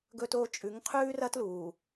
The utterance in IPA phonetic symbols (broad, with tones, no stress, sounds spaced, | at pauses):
ɡ ɵ˨ t oː˨ t͡ʃʼ ʉ˨˦ ŋ qʰ ʉː˦ r ɐ˦ t l uː˨